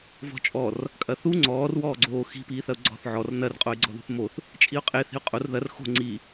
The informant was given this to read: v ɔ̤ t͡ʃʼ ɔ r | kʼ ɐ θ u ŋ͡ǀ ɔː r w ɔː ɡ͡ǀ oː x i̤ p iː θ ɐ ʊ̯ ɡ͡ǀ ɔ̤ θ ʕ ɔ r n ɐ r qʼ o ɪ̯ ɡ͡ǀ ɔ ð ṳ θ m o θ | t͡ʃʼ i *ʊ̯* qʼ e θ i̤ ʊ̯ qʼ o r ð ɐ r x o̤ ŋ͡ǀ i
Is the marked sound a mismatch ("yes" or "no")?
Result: no